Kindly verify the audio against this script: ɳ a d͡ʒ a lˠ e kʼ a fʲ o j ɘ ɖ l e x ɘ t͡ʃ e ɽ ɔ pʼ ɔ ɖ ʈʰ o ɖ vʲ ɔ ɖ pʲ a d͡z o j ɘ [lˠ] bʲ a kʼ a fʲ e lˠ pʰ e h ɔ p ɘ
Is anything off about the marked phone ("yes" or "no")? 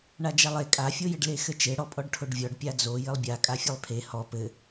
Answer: no